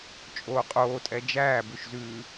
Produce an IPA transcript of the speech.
t͡ʃʼ oː qʼ oː tʼ ɛ d͡ʒ æː b ʉ ʃ z ʉː

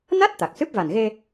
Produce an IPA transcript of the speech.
n a˦˥ t̚ t̪ a˨˩ k̚ s ɨ˦˥ p̚ v a˨˩ n ɣ e˧

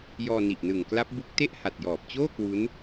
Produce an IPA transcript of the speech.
j ɔː˧ n i˨˩ ʔ n ɯ˨˩ ŋ k l a˦˥ p̚ b u˦˥ k̚ t e˥˩ ʔ h a˨˩ t̚ j ɔː˨˩ p̚ t͡ɕ oː˥˩ k w u˦˥ n

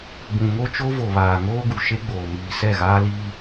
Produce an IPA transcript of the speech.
b ũ˨ ŋ o˦ t͡ʃ o˦ v o˨ β aː˨ ŋ oː˦ ɡ u˨ ʃ e˦ ɡ͡b oː˨ m iː˨ s ɛ˦˨ ɣ aː˦ l iː˦

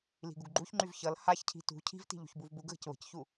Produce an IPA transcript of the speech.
l i̤ ɡ u ɡ ɡ͡ǃ u ç ŋ͡ǃ y v ç ʌ l h a ç cʰ i̤ t ṳ cʰ i̤ v t i̤ ʎ ṳ ç b u v b u ɡ ɣ ə̤ c β ə̤ c ç u

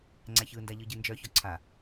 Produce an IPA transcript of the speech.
ŋ͡ǀ æ ç ɯ n d a ʎ ɯ ɟ ɯ n d͡ʒ œ ç ɔ ǀʰ a

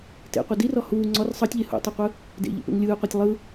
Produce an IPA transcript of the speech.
t ḛ qʷ ɯ d i r ɔ h uː ŋ͡ǀ ɔ r sˤ ɤ tʲ ʎ e h ṵ tˤ ɯ qʷ ɯ | d ḛ ʎ ḛ p ḛ ŋ lʲ ɯː qʷ ɤ tʲ lˠ ɯ

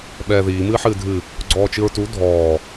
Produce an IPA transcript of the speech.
ɓ ɛː ð iː m ɨː ħ ɨː dʱ ɨ | ɡ͡ǀ ɔː t͡ʃ ɨ ɹ t u dʱ ɔː

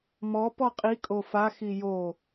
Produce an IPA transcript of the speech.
m ɔ p ɔ qʼ i kʼ o f a x i j o

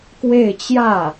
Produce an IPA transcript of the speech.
k w e˥˧ ɪ̯ t͡ɕ j ä˥˩

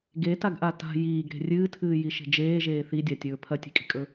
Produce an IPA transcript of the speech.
ɡ e t a ɡ ʔ a t a̤ j iː ɡ ɾ e̤ rʲ ɨː tʰ ɨː j i ʃ e̤ d͡ʒ eː ʒ eː θ i dʲ a tʲ ɵː pʰ ɐ tʲ e̤ kʼ i̤ kʼ ɵ

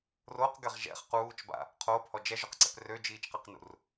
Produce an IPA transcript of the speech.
r o q ɡ ɛ ʁ ʒ ɛ̰ χ q uː t͡ʃ b a̰ | qʰ oː p h ɔ d͡ʒ ɛ ʒ o q ǀ ɛ̰ p r ø d͡ʒ iː t͡ʃ q ɛ q n ṵ r

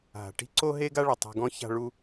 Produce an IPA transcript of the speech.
ɦ a̤˨ ʈ i̤˦ ǀ o˦ ɦ e˦ ɡ a˦ ɭ ʏ˨ tˤ e̤˧ ɡ ɔ̃˦ ç a̤˧ ɭ u˧

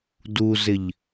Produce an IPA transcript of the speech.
d u z ɪ ʎ

